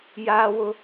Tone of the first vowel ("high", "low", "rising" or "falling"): high